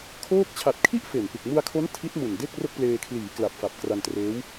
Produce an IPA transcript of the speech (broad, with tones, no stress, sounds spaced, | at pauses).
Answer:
kʰ oː˥˩ k̚ t͡ɕʰ a˨˩ t̚ kʰ i˥˩ ʔ f e˨˩ n p ɯ˨˩ k̚ m u˧ a̯ kʰ o˦˥ n tʰ i˦˥ t̚ m u˨˩ n d e˥˩ k̚ r o˥˩ k̚ p l eː˧ kʰ l iː˩˦ k l a˨˩ p̚ f a˨˩ p̚ k r a˧ n t r eː˦˥ w